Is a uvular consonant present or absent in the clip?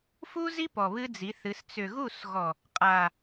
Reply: present